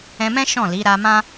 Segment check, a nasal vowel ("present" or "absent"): present